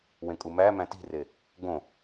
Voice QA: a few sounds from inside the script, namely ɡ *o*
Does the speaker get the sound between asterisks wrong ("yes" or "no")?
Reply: yes